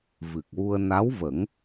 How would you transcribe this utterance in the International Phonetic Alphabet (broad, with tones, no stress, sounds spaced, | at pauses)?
v ɨ˨˩ k̚ w u˧ ə̯ n a˧˥ w v ə˨˩˦ ŋ